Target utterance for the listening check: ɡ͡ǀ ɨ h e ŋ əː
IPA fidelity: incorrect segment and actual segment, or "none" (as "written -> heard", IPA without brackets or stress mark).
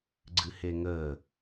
none